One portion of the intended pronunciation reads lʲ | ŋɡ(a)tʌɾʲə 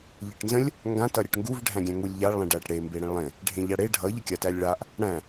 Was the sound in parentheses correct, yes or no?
no